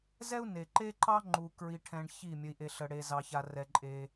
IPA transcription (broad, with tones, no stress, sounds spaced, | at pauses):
z ɛ˦ u̯ n e˩ ǃ e˦ ǃ ɑ˦ ŋ͡ǃ u˩ k ɹ i˩ ʈʰ ɛ̃˩ ɳ ç i˧˩ mʲ ə˩ i̯ ʔ e˩ ɬ ə˩ ɽ e˩ z ɑ˩ ç a˩ r ɛ˩ ǃʼ e˩